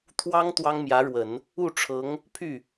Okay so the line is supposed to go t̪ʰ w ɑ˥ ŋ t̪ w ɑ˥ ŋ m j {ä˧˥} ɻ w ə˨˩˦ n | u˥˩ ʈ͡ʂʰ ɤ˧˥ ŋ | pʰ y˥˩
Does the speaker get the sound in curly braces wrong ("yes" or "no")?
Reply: no